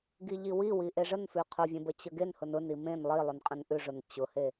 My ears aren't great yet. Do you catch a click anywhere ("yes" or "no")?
no